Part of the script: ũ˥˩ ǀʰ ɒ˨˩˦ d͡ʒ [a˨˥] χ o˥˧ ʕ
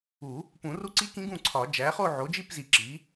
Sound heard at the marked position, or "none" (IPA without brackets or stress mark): æ˨˥